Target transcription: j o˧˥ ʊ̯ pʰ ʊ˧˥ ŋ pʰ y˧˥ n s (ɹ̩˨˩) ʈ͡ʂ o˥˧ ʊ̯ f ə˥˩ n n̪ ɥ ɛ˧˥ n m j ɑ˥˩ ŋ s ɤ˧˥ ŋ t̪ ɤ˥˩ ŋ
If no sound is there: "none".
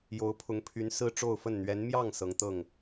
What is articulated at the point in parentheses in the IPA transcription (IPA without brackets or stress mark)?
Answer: ɹ̩˥